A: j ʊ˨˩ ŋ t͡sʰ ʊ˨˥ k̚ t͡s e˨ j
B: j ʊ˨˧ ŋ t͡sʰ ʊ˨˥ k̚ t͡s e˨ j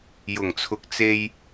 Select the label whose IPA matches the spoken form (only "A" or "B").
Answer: A